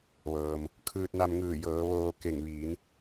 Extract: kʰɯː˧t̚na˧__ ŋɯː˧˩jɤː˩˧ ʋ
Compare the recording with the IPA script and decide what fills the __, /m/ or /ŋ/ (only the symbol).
m